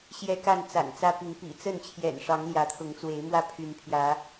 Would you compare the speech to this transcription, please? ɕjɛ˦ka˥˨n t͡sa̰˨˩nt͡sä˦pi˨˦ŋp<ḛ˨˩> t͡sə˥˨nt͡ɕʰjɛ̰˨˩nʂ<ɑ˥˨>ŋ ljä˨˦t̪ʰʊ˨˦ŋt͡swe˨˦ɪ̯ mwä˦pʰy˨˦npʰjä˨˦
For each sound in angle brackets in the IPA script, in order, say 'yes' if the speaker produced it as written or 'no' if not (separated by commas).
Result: no, no